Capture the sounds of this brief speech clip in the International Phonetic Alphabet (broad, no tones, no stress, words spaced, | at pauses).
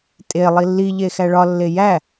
tʼe lˠilːi ʎexæɭɒ lːejæ